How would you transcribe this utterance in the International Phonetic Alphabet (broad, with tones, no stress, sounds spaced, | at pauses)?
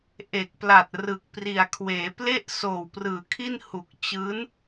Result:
ʔ e˨˩ k̚ p l a˨˩ t̚ r ɯ˨˩ k̚ p r i˨˩ a̯ kʰ w eː˩˦ p l e˥˩ ʔ s oː˨˩ w p r ɯː˩˦ kʰ i˥˩ n h u˨˩ k̚ t͡ɕ ɯː˦˥ n